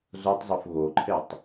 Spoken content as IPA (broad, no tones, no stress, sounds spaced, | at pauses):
z o tˤ zˤ o f ɣ o ǃʰ e tˤ